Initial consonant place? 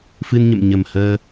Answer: labial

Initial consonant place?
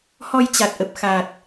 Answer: glottal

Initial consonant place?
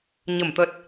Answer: palatal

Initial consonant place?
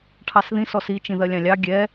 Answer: retroflex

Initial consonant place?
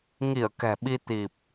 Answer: velar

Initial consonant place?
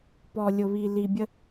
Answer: labial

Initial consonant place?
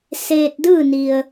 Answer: alveolar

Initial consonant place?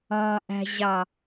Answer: glottal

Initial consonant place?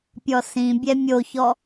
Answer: labial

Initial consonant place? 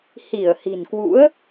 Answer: glottal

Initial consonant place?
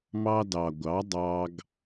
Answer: labial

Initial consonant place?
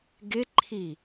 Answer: velar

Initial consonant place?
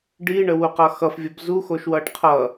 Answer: retroflex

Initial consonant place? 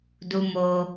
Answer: alveolar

